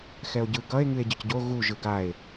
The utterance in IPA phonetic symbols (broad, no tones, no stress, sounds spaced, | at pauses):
x ɛ o̯ ɟ ɯ ɡ ʌ e̯ ŋ ɨ e̯ ɟ ə c ɟ o ɣ u ʒ ɯ ɡ a e̯